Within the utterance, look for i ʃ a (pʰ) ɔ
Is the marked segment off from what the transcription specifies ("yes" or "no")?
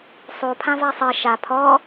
no